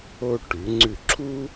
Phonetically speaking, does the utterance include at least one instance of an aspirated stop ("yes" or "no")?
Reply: yes